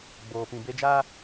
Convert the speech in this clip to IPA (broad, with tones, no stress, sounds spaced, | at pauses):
ɡ͡b oː˨ p ĩ˨ b e˦ d͡ʒ aː˦